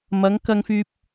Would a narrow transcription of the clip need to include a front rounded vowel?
yes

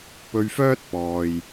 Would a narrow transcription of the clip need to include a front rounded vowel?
yes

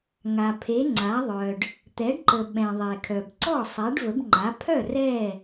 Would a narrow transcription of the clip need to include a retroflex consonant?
yes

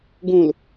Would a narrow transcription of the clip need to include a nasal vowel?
yes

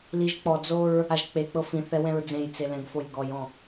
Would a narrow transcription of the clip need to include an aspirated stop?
no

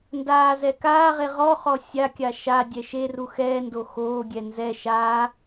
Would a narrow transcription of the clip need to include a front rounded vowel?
no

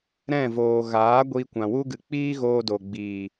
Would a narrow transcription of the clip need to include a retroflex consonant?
no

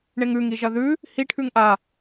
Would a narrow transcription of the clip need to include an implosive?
no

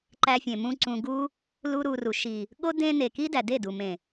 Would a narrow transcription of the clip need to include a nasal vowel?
yes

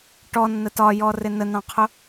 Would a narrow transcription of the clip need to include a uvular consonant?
yes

